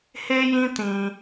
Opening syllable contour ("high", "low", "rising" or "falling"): high